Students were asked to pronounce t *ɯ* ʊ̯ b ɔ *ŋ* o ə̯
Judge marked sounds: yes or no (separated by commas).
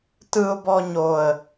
yes, no